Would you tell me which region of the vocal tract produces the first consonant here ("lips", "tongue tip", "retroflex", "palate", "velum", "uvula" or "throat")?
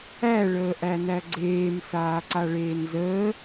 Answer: retroflex